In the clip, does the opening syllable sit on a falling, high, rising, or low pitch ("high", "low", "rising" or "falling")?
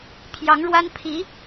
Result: rising